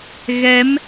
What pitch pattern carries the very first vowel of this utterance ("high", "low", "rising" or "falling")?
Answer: rising